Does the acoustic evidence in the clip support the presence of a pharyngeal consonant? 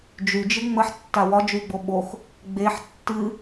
yes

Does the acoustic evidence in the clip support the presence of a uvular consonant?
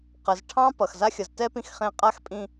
yes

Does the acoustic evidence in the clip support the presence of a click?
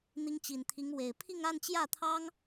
no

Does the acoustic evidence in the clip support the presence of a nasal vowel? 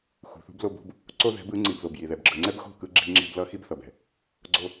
no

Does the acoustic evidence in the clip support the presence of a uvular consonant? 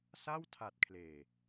no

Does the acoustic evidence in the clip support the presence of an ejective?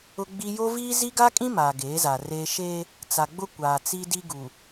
yes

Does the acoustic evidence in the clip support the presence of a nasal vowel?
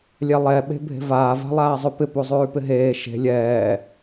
no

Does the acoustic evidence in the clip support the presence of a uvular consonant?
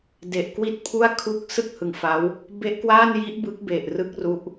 no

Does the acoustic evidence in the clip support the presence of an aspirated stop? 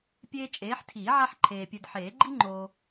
yes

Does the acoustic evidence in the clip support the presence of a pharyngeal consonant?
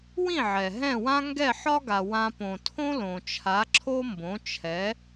yes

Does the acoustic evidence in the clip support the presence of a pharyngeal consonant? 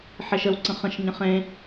yes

